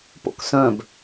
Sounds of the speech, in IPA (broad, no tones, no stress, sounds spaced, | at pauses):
p o̰ k s œ̃ b